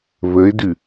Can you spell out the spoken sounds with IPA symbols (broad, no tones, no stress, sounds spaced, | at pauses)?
β ə ɪ̯ d ʉ